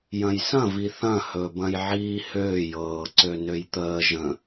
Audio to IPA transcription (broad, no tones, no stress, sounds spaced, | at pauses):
j ɐ̃ j s ɐ̃ v i θ ɐ̃ h ɵ b ɐ̃ j ʕ iː h øː j ɤː ǀ ø n ø j t̪ əː ʒ ə̃